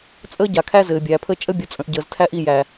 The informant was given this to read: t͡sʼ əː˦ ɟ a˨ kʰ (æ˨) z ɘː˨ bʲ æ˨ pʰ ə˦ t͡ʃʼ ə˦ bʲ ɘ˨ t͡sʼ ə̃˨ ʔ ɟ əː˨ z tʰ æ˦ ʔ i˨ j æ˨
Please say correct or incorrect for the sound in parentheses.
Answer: incorrect